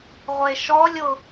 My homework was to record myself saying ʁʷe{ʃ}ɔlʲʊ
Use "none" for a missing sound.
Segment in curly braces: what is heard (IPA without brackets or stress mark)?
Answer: ʃ